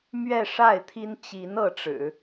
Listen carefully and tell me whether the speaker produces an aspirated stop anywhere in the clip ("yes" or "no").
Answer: yes